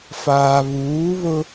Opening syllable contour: low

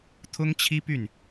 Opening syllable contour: high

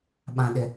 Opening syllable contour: low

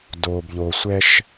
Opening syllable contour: low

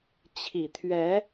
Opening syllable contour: low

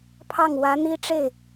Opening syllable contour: falling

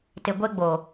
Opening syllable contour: low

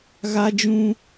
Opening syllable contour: high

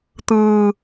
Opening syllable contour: low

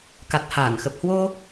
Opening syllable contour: low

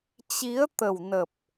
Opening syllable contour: rising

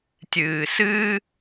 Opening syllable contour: low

